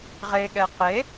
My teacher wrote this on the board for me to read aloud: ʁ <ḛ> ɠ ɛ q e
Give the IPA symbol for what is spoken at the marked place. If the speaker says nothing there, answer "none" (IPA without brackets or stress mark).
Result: e